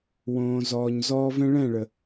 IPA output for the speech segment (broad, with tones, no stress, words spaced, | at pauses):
wõː˨zɔː˨ɲ zɔː˧vɛ̃˦ ɭɛ̃˦˨ɭə˨